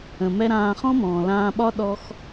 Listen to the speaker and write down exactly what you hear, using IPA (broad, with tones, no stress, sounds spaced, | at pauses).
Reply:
ə̃˨ m ɛ˦ ɾ ãː˧ χ ɔ̃˦ m ɔ̃ː˨ l ãː˧ ɓ ɒ˦ ɗ ɔ˦ x